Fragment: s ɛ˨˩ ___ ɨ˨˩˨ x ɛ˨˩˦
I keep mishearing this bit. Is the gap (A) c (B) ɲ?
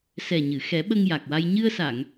B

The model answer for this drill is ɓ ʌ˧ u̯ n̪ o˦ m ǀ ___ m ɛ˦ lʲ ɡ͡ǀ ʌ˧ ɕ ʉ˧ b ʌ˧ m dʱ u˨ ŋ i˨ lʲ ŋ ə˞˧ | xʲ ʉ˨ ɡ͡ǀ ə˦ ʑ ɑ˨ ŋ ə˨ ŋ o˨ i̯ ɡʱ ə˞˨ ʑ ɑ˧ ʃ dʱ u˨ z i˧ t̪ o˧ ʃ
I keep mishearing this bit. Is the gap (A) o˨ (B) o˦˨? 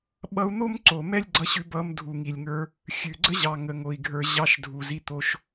A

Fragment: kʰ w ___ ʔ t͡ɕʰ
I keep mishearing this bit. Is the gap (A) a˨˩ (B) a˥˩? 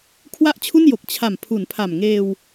B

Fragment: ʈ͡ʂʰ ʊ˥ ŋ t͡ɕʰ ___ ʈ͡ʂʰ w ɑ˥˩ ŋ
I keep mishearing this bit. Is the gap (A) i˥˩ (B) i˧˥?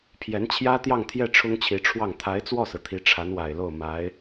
B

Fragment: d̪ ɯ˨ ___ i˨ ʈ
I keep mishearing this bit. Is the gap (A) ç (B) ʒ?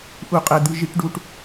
B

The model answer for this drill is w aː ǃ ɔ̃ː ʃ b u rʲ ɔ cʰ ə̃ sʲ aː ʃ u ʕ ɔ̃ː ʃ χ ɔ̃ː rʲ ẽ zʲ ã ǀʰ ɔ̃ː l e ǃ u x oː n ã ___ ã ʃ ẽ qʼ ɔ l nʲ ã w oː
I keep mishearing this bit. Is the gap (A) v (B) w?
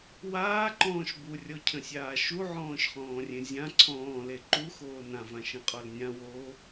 A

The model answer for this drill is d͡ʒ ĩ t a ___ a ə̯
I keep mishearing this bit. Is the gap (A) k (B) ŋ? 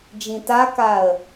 A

